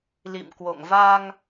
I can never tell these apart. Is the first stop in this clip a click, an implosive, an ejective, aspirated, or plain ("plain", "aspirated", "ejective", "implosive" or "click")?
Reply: plain